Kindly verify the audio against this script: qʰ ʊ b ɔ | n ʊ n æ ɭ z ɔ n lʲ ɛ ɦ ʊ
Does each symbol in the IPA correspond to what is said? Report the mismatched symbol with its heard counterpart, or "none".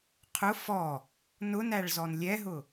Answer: b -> f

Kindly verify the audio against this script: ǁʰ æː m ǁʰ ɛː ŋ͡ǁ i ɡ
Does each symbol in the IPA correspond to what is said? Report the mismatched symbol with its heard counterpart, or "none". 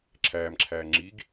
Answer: ɛː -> æː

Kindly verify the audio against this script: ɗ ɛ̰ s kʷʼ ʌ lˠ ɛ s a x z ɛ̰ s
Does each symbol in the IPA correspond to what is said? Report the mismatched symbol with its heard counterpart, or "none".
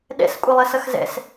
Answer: a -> ʌ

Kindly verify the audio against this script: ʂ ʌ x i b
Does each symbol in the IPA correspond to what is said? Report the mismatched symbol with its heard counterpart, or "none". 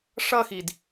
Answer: b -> d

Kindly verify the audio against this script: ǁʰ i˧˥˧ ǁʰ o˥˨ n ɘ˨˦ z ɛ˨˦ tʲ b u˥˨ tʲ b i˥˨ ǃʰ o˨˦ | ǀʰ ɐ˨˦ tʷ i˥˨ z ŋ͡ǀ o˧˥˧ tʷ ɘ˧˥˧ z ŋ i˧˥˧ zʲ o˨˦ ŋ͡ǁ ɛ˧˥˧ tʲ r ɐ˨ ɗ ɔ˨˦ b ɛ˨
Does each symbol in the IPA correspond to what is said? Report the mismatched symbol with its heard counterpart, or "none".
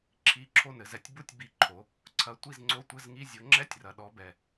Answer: none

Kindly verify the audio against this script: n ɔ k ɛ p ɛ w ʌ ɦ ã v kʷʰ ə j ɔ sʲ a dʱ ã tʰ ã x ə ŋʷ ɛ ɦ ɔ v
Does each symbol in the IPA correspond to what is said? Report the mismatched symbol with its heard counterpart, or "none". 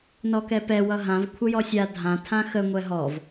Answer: none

